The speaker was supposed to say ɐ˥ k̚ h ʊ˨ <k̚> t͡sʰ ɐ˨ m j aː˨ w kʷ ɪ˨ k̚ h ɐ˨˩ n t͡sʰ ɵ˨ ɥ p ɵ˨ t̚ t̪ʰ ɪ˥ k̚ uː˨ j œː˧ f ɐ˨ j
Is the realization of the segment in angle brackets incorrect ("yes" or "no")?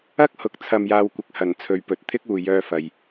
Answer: no